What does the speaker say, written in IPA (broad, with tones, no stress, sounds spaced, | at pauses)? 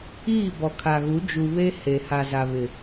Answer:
iː˦˨ b ɔ˨ kʰ a˨ ɣ u˨˦ d͡ʒ u˨ β e˦ h e˨ h a˨ z a˨ β ɪ˨